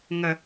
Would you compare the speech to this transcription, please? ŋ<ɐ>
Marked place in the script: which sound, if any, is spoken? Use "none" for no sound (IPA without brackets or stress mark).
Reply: ɐ